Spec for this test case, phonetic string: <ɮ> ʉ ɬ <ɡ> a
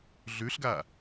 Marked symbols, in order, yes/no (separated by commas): yes, yes